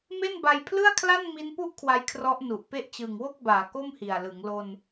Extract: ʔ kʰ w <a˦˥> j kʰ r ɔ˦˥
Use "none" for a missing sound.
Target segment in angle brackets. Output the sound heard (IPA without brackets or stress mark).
a˧